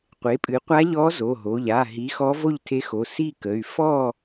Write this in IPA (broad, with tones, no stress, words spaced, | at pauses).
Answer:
qʷe˩˥pʼɨ˩˥qʷa˧˥ʎɔ˧˥ zo˩˧˩ɦo˩˧˩ʎ a˩˧˩ɦi˩˥ xɔ˧˥vo˥˨ʎtʰe˧˥xo˩˧˩ si˥˨kə˩˧˩y̯ fɔ˥˨